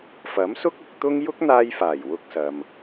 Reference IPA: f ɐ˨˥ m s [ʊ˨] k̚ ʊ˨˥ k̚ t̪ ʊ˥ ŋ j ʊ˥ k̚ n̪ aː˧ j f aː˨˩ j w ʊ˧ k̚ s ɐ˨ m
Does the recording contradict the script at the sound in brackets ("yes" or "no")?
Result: yes